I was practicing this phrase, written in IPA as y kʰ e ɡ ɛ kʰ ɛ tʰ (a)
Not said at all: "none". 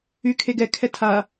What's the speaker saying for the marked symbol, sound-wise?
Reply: a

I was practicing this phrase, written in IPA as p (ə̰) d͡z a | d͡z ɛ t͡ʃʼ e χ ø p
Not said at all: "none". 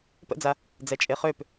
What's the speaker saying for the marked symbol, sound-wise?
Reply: ə̰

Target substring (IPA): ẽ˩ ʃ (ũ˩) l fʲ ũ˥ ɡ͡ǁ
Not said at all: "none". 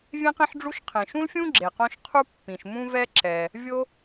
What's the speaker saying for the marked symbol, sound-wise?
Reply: ũ˥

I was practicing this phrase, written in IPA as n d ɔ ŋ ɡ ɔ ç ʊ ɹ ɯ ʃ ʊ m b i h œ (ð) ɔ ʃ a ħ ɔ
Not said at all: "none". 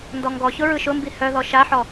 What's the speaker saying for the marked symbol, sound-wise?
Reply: ð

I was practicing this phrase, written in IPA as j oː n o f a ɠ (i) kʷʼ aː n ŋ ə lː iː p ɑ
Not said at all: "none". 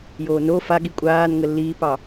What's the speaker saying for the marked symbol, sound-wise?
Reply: i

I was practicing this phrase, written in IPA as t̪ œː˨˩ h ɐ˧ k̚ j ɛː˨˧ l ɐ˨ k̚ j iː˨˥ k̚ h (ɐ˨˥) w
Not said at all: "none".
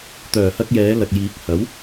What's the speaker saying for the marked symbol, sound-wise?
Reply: ɐ˨˥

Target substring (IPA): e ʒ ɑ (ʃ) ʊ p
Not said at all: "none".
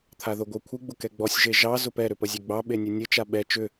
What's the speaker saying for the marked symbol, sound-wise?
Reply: z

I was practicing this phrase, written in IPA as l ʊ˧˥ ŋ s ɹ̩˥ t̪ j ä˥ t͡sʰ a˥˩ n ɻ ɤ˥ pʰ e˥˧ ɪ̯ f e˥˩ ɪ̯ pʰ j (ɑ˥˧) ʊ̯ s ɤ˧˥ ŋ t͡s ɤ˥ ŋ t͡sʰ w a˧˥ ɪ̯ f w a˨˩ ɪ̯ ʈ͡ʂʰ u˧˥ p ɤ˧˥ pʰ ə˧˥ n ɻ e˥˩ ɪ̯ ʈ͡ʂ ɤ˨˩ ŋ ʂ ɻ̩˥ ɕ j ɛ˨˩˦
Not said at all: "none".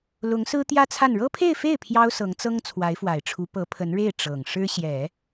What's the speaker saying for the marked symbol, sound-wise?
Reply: ɑ˥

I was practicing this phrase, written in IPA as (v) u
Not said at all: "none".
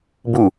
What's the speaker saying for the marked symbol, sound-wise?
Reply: b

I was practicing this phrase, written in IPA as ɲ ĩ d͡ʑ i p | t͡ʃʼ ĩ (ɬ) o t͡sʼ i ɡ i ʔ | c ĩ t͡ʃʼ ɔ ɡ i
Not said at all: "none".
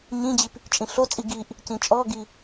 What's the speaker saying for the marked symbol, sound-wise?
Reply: ɬ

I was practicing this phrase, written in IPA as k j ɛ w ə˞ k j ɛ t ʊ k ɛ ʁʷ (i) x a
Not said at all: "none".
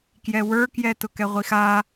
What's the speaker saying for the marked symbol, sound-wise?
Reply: i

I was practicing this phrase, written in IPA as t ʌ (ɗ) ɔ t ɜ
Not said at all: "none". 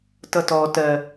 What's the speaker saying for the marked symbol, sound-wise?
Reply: t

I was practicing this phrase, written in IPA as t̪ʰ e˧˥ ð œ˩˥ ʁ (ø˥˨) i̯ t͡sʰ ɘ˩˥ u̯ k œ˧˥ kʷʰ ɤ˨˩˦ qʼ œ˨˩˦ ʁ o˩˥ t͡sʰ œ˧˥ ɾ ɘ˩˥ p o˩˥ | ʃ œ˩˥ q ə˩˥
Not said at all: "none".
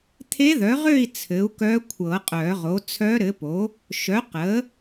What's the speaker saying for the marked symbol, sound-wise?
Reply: ø˥˨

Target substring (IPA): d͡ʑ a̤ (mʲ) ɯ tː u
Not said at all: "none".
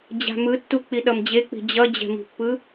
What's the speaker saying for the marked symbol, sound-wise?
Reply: m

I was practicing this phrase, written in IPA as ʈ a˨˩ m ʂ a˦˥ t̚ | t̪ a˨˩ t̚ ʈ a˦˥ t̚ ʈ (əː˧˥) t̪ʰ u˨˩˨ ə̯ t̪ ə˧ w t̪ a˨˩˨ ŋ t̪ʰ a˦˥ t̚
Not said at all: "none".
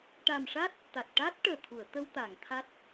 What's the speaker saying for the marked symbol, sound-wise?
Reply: əː˨˩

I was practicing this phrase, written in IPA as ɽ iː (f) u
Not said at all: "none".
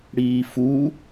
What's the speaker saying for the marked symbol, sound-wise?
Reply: f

